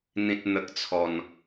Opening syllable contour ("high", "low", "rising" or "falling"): low